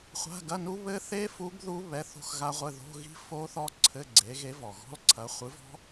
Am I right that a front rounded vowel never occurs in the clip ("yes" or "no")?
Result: yes